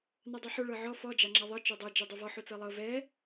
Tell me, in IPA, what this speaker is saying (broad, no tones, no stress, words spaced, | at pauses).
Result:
nadˤuħo ɭɤʕɔ fɔ d͡ʒaŋ͡ǁaðˤɤ t͡ʃodˤɤ d͡ʒɛdˤuvɔ ħot͡sɤlˠɤ vɛ